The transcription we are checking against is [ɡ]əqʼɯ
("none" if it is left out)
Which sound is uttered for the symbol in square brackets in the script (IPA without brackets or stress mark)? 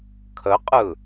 kʰ